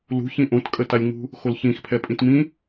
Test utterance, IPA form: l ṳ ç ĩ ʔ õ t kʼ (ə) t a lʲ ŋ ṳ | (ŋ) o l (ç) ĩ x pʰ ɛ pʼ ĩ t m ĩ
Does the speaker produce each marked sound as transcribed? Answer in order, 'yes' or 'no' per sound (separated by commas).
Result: yes, no, yes